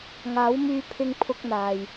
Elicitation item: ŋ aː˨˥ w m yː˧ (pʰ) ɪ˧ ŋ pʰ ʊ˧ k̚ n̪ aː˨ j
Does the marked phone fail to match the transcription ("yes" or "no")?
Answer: no